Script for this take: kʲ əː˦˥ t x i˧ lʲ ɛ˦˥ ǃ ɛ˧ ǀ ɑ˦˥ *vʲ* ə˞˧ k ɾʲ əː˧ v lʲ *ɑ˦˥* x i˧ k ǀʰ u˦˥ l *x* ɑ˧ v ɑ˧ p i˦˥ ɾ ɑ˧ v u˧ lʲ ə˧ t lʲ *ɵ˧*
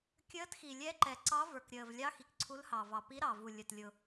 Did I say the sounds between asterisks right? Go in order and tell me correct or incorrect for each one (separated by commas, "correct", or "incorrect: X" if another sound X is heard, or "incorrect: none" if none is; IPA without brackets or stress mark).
incorrect: v, correct, incorrect: h, incorrect: ʊ˧